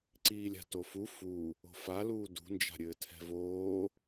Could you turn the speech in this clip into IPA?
ǀ iː lʲ a̤ t o f u f u | o̤ f a l uː d ṳ n d͡ʒ a̤ ɾʲ ɘː tʰ ɛ̤ v oː

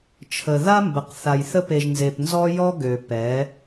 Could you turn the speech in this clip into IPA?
t͡ʃʰ ə˨ ð a˦ m b ə˨ q θ a˨ j θ ə˦ p e˨ ʒ n z e˨ p n z ɔ˦ j ɔ˦ ɡ ø˨ p ɛ˨˦

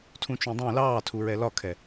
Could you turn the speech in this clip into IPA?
tʰ ũ t͡ʃ ũ dˤ ũ l ɑː tʰ u ɹ ɛ l ɒ kʰ ɛ

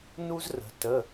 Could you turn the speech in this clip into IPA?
n u˥ z r ə̤˨˦ t ə˧˥˧

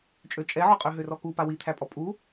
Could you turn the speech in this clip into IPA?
t͡ʃʼ ø t͡ʃʼ ɛ ʕ ɔ qʼ ø ɦ ø r ɔ k u p a w i t̪ʰ æ pʼ ɔ pʼ u

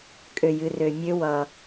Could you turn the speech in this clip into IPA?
kʼ ø˧ j ɨ˧ r ø˧ mʲ ø˦ w ʌ˧

